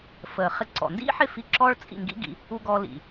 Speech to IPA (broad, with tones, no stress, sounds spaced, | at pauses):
f ə˩ χ ɪ˧ ǀ ɔ̰˩ n d ḭ˥ ħ ɪ˥˩ f i˧ ǁ ɔ˥ ɭ t͡sʼ ḭ˥˩ ŋ ɡ ḭ˥ ɡ ḭ˧ | u˧ ɡ ɔ˧ l ḭ˩